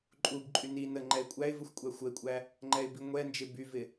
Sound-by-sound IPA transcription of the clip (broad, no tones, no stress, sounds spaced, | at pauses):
ǃʼ u b ǃʼ y n i n ə ŋ͡ǃ ɛ ɪ̯ kʷʼ æ ɪ̯ v ə xʷ kʷʼ æ xʷ ə ɪ̯ kʷʼ æ | ŋ͡ǃ ɛ ɪ̯ b i ŋʷ ɛ n d͡ʒ ɪ b y v ɪ